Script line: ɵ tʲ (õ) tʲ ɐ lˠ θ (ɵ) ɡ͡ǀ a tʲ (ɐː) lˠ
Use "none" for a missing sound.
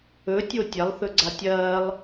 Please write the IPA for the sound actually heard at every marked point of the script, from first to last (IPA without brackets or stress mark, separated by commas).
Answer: o, ɵ, ɐː